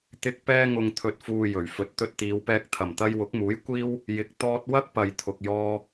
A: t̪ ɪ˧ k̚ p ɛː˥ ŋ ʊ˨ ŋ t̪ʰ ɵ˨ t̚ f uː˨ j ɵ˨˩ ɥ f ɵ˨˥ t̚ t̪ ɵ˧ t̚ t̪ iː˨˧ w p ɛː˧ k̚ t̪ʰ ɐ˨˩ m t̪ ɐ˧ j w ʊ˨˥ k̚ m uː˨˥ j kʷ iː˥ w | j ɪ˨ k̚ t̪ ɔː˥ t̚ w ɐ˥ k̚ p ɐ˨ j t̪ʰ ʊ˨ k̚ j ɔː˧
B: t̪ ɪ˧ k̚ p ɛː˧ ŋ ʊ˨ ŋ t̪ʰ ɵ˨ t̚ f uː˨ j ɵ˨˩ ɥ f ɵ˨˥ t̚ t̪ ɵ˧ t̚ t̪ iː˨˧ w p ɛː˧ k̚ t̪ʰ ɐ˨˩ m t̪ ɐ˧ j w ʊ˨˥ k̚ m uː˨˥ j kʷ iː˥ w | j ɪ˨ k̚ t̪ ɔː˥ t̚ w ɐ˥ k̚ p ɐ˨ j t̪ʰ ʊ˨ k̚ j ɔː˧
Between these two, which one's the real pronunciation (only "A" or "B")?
B